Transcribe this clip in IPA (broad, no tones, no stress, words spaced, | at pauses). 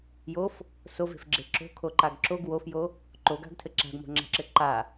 jof | sove̤fɡ͡ǁe ǁo̤kʰoǃaɡ ǁoɡ wofjo | ǃoɡa̤ɡtʰɘ ǁa̤ɡmo̤ŋ͡ǁa̤ǁɘ ǃa